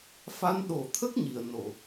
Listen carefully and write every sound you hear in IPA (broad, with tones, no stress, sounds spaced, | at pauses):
f a˧˥ n ɗ o˨˩ t̪ʰ ə˦˥ k̚ ɲ i˨˩˨ ə̯ n o˨˩˨